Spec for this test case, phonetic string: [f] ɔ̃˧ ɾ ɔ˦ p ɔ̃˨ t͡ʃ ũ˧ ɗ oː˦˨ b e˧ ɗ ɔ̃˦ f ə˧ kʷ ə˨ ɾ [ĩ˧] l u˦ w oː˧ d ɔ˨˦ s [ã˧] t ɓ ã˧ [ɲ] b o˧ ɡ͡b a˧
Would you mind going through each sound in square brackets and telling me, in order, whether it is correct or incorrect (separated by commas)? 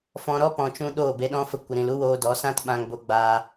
correct, incorrect, incorrect, incorrect